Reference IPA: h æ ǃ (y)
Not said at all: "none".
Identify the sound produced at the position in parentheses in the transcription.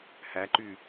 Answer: y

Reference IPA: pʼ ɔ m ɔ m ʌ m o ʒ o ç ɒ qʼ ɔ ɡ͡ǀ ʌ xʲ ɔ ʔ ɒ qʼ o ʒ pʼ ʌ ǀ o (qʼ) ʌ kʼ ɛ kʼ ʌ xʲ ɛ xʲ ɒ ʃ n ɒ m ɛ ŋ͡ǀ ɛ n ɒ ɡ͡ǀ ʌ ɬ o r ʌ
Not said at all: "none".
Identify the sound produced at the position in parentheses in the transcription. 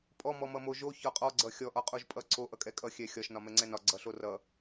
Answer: ʔ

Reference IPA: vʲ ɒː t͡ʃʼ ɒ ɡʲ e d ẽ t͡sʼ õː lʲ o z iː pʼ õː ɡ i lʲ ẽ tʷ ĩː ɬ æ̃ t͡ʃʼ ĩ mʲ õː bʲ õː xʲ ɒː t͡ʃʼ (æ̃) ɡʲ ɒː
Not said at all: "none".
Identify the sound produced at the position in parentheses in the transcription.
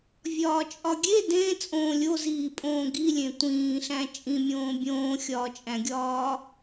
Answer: æ̃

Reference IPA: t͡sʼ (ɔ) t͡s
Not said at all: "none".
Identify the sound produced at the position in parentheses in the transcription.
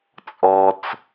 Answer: ɔ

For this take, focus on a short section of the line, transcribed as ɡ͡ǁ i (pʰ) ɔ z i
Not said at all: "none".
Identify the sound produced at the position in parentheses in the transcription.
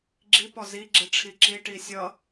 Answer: p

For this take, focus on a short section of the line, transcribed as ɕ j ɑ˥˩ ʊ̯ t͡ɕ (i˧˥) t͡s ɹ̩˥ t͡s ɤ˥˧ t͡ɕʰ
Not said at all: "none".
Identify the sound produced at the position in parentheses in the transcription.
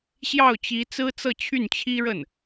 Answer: i˧˥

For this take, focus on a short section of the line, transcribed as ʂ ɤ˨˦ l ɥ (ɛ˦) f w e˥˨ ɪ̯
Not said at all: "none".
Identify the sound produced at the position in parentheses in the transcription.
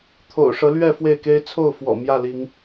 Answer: ɛ˥˨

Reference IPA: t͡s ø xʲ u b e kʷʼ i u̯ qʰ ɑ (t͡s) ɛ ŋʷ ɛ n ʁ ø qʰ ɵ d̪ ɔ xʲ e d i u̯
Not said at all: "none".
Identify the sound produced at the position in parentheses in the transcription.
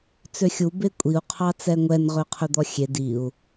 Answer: t͡s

